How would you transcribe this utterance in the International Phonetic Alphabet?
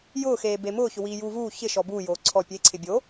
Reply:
j ʊː x eː b e m ʊː ç ʊ w iː j uː v uː ç ɪ ʃ ɔ b uː j oː ǀʰ ɔ pʲ e ǀʰ ɪ bʲ o

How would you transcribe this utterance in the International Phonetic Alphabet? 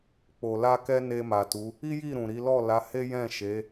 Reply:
k͡p o˨ l a˧ k ɛ˦ n e˧ m a˨ t u˨˦ | i˦ j i˦˨ ɾ ũ˨ ɾ i˨˦ l ɔ˦˨ l a˨˦ h e˦ j ɛ̃˦˨ ʃ e˨˦

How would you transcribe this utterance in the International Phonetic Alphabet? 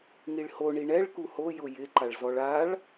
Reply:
ŋ i ɭ h o ɳ i ɳ ɛ ɭ k u h o j ʊ j ɪ ǃ a ɭ z ɔ ɭ a ɭ

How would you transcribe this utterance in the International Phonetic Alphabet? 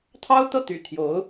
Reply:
t̪ʰ ɑ˥ ʊ̯ t̪ ɤ˥˩ t̪ y̰˨˩ t̪ʰ j o˧˥ ʊ̯

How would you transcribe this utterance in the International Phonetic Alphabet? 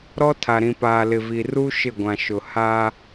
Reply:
ɾ ɔ˦ tʰ a˨ ɾ ĩ˨ p aː˨ l ɪ˨ v i˨ r u˦ ʃ ɪ˦˨ ɡʷ ã˨ ʃ ʊ˨ h a˦

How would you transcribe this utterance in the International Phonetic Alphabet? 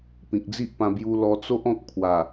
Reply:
p ĩ˨ k̚ d͡z i˦ ʔ p ã˧ b j u˧ l ɔ˧ t͡s o˦ ʔ ɔ̃˦ k̚ pʰ w a˨˩

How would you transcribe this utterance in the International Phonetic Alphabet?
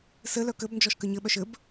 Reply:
s ɘ l œ k ɘ b n d͡ʒ ɔ ʃ k ɘ ɲ ɘ ɓ œ ʃ ɘ b

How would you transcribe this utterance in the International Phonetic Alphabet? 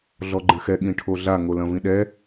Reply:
ɮ ɔ ɡ͡ǃ ɘ x ɛ ɠ ĩ ʈʰ o ɮ a ŋ o l ɐ̃ v ĩ ɗ ɛ

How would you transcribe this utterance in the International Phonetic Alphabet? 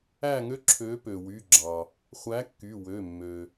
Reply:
æ˥˨ ŋ ø˥ ǁʰ ø˨˥ p ø˩ w y˩˧˩ ɡ͡ǁ ɑ˩ | χʷ æ˨˥ kː y˩˧˩ w ø˩˧˩ mː ø˩

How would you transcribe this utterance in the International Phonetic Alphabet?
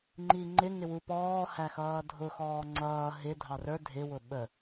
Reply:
ŋ͡ǃ i ŋ͡ǃ ɪ ŋ ɪ w u p ɔː h æ x ʌː dʱ ʊ x ɔː ŋ͡ǀ ʌː ɦ ɪ dʱ ɑ r ə˞ dʱ ɪ w ʊ ɓ ə

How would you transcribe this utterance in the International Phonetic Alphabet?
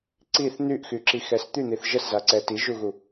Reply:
ǀ i θ n̪ y ʔ x y ǁ i x ɛ s t̪ y n̪ i θ ʒ ə s z a ǀ ɛ t i ʒ u ɣ u

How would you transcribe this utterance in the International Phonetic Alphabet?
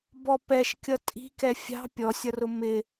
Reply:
b ɔ p ɛ ʃ kʲ ʌ tʼ i̤ k ɛ fʲ ɑ̤ pʲ ɔ sʲ ʌ r ʊ m ɪ

